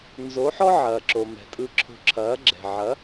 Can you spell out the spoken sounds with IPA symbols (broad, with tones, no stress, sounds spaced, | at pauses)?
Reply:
n z o˨˦ ħ ɔ˦ ʕ ɐː˨ ǁ o˨ m ɛ̤˨ tʼ ɯ˧ ǁʰ o̤˧ ǁʰ ɐː˨˦ ɡ͡ǁ ɛ̤˨ ʕ ɐ˨˦